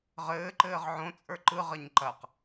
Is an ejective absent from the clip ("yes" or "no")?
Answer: no